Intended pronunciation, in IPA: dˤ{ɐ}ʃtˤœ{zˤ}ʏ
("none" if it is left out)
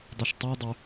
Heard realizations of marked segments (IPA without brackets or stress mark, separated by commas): ɐ, dˤ